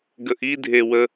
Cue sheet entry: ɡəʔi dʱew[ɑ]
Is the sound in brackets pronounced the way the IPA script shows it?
no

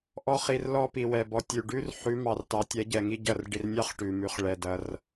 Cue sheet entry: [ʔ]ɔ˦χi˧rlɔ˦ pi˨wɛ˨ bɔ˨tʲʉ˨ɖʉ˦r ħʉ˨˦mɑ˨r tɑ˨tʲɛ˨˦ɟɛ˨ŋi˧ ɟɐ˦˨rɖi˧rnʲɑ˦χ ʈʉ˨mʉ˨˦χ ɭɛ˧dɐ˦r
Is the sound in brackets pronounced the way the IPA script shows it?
yes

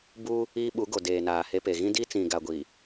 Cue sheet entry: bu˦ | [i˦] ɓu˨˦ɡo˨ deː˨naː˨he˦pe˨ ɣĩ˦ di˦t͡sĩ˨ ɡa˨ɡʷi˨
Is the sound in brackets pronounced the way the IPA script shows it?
no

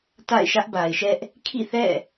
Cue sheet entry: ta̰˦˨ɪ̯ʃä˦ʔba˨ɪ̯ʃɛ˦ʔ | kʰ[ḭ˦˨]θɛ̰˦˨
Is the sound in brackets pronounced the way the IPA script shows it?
yes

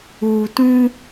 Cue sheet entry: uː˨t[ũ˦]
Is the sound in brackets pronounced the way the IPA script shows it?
yes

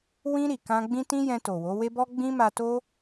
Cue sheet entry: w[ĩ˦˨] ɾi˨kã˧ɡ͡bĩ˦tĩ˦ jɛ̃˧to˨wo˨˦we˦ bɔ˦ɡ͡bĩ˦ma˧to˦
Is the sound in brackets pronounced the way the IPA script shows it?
no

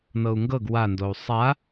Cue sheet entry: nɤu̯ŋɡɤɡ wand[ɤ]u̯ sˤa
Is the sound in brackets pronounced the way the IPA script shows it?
no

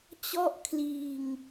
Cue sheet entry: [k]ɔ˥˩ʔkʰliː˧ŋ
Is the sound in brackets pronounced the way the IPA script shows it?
no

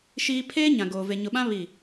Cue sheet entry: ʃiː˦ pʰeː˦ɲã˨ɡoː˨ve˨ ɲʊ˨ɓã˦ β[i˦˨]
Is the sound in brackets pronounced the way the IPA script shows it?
yes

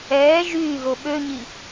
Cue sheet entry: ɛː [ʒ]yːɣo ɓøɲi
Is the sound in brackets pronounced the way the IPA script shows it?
yes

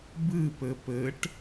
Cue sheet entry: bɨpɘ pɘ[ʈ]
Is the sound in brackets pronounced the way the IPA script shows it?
yes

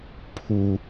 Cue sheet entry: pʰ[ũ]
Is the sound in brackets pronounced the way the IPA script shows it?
no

